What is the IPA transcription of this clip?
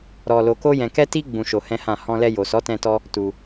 ɾ ɔ˧ l o˧ k o˦ j ɛ̃˧ k ɛ˦ t i˦ ɡ͡b ũ˧ ʃ o˧ h ɛ̃˦ h ã˦˨ h ɔ̃˧ l ɛ˧ j o˨ s ɔ˨˦ t ɛ̃˧ t ɔ˧ | t u˧

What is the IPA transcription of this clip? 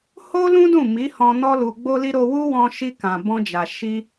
h o˦ l ũ˦ d ũ˦˨ m i˨˦ h ɔ̃˧ n ɔ˦ l u˧ ɡ͡b o˦ l i˦ ɾ o˧ w u˦ w ɔ̃˧ ʃ i˧ k ã˨ b ɔ̃˧ d͡ʒ a˨ ʃ i˧

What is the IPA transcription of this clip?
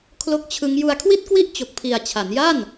kʰ l o˦˥ k̚ t͡ɕʰ ɯ˦˥ ŋ j u˧ a̯ kʰ w i˥˩ t̚ k w i˥˩ ʔ t͡ɕ o˨˩ k̚ pʰ i˨˩ a̯ t͡ɕʰ a˩˦ n j a˥˩ n

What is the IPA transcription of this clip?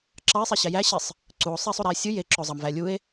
ǁ ɑ e̯ sˤ i ɕ æ j æ ɕ i sˤ | ǀ u o̯ sˤ e sˤ u ɾ æ e̯ sʲ ɯ j e ǁ o zˤ ɑ m v æ lʲ u e̯

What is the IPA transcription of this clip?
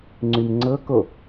ŋ͡ǀ y m ŋ͡ǀ ɤ k o

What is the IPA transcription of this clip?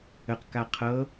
ə q k a qʰ ɤ

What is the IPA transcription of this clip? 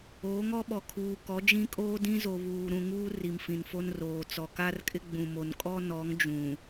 oː˨˦ ŋ ɔ˦ ɓ ɔ˨ kʰ uː˨ k ɔ˨˦ d͡ʒ ĩ˦ kʼ oː˦ d ĩ˦ z o˨ β uː˨ ɾ ũ˦˨ ŋ uː˦ r i˨ m f ĩ˨ n f o˦ n r oː˨ t͡s ɔ˨ k a˦ r kʼ ɪ˦ ɡ͡b ũ˨ m o˨ n kʼ ɔ˦ n ɔ˨˦ ŋ d͡ʒ ũ˨

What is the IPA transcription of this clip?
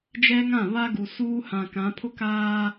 d͡ʒ ɛ˦ ŋ ã˦˨ β a˦ ɡ u˨ s uː˦ h ã˨ k ã˨˦ pʰ ʊ˦ k aː˦

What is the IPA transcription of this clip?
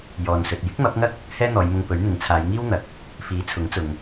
j ɔː˨ n s ɵ˨ t̚ j ɪ˥ k̚ m ɐ˨˥ p̚ ŋ ɐ˥ k̚ | h ɛː˥ n̪ ɔː˨˧ j m ʊ˧ ŋ p ɵ˨˥ ɥ n̪ ɪ˨˥ ŋ t͡sʰ aː˨˧ j ŋ iː˥ w n̪ ɐ˨ k̚ | f iː˨˥ t͡sʰ ʊ˨˥ ŋ t͡s ʊ˨ ŋ

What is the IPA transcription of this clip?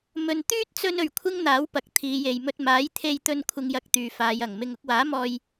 m ɵ˧ n t̪ yː˥ t̚ t͡s ɵ˧ n ɵ˨ ɥ kʷʰ ɪ˥ ŋ n̪ aː˨˥ w p ɐ˨ k̚ t̪ʰ iː˨˧ j e˨ j m ɵ˧ t̚ m aː˨˥ j t̪ʰ e˧ j t̪ ɵ˧ n kʷʰ ɪ˨ ŋ j ɐ˨ k̚ t̪ yː˨ f aː˨˧ j ɐ˨˩ ŋ m ɪ˨ ŋ ʊ˧ k̚ w aː˨˥ m ɔː˧ j

